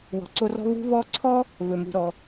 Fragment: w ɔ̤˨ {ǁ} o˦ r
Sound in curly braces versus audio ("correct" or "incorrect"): incorrect